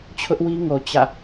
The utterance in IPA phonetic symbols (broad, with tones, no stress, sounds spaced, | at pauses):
t͡ɕʰ ʊ˦ ʔ w i˦ ŋ o˨ t͡ɕ ä̰˦˨